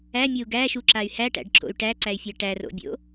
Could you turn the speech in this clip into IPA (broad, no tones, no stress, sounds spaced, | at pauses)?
æ mʲ o u̯ ɡ æ ʃ u ǁ a y̯ h æ ʈ æ̰ ɖ ǁ o̰ y̯ ʈ æ ǀ æ y̯ fʲ æ ʈ æ r o̰ bʲ o̰